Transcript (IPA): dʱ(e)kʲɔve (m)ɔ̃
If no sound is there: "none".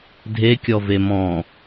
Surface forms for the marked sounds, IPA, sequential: e, m

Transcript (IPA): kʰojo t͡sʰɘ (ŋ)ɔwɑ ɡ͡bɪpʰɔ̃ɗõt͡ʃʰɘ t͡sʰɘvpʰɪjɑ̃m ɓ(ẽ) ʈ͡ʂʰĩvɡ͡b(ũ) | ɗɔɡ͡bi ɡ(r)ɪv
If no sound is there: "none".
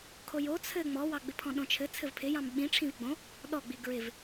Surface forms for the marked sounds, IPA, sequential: ŋ͡m, ĩ, õ, ɹ

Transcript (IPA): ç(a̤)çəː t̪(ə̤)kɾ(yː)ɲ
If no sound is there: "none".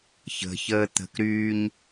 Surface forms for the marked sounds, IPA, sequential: ə̤, ə̤, yː

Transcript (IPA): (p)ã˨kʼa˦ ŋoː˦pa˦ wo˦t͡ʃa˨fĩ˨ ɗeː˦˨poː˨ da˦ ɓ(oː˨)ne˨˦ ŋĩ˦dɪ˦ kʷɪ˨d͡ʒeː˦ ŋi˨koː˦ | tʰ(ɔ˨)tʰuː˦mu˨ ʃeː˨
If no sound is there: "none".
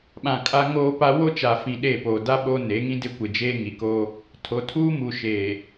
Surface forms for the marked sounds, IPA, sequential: ɓ, oː˦, o˨

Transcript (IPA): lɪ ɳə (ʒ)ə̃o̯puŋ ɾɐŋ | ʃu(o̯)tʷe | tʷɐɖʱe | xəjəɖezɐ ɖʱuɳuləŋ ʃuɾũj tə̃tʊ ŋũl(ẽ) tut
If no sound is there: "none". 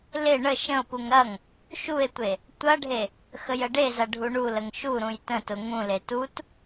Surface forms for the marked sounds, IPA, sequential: ʃ, e̯, e

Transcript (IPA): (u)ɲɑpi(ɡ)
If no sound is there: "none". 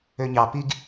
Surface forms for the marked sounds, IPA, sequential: ø, ɡ

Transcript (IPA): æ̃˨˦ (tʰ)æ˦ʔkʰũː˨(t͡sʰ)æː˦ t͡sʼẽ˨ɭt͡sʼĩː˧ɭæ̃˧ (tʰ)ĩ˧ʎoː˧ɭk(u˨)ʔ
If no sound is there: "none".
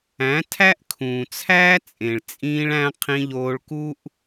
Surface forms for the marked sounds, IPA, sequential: tʰ, t͡sʰ, qʰ, u˦

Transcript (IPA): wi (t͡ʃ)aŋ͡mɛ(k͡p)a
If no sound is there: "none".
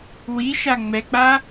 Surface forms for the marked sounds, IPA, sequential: ʃ, k͡p

